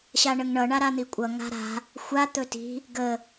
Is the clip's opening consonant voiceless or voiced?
voiceless